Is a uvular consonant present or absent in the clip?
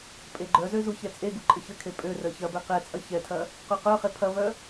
present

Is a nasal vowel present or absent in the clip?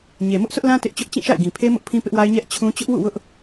present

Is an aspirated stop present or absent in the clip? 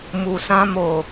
absent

